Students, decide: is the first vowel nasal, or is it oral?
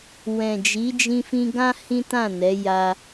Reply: nasal